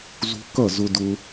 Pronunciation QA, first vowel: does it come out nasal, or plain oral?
oral